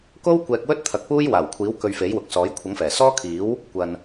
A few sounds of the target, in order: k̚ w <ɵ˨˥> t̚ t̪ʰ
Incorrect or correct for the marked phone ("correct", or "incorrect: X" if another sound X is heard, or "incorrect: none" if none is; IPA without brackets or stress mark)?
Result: incorrect: ɵ˥